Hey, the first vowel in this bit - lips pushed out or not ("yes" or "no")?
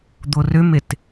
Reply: yes